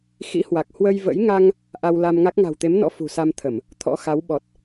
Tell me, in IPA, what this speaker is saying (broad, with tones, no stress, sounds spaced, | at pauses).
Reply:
x ḭ˧˥ h w a˨˩ k̚ h w ə˧ j v ə̰˧˥ j ŋ a˧ ŋ | ʔ a˧ w l a˧ m ŋ a˦˥ k̚ ŋ a̤˨˩ w t̪ e˨˦ m n ɔ̰˧˥ f ṳ˨˩ s a˧ m t̪ʰ ə˧˩˨ m | t̪ʰ ɔ̰˧˥ x a˨˦ w ɓ ɔ˨˩ t̚